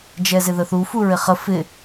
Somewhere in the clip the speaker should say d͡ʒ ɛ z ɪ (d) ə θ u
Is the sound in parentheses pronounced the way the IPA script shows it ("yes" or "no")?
no